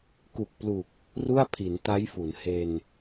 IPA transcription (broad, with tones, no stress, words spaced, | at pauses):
ku˨˩k̚plu˨˩k̚ | ru˥˩a̯pʰi˩˦nta˦˥jfu˩˦n he˧n